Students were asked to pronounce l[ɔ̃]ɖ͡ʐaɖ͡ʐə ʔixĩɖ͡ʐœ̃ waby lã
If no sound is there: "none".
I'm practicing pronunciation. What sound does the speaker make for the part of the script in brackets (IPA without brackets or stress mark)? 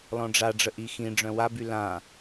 ɔ̃